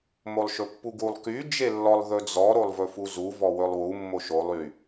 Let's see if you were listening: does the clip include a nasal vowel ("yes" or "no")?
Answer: no